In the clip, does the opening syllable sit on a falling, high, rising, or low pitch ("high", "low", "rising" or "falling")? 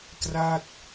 falling